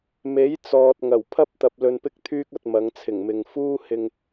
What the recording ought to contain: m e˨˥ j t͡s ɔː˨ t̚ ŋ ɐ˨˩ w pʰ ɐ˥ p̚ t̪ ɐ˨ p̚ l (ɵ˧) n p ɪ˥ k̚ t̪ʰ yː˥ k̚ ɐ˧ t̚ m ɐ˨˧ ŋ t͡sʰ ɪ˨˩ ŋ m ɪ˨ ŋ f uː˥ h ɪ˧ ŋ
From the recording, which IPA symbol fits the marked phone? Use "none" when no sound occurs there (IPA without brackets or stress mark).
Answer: ɵ˧